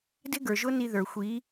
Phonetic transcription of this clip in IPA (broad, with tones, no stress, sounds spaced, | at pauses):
d ɪ˦ ɡ ə˞˨ ʒ ʊ˦ n i˧ ð ə˞˨ xʷ iː˨˦